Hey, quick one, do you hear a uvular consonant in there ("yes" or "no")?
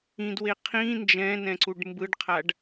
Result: yes